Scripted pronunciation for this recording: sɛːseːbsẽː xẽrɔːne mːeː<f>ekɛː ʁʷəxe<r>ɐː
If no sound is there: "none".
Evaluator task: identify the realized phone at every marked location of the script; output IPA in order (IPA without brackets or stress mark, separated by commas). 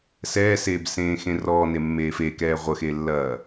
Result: f, lː